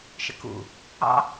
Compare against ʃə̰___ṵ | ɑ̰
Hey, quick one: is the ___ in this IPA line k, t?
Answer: k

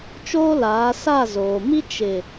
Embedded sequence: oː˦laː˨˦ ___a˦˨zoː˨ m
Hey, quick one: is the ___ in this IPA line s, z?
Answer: s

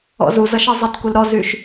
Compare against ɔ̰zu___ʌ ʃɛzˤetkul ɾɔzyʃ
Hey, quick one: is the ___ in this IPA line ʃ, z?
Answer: z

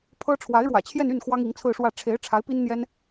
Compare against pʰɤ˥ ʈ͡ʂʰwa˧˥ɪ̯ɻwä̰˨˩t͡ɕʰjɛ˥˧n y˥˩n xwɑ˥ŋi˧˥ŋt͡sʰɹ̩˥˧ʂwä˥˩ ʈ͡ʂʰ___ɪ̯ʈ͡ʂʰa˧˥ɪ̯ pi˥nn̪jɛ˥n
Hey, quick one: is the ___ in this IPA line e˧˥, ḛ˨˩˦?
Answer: e˧˥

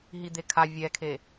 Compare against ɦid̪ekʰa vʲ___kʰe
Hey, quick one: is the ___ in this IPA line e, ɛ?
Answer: ɛ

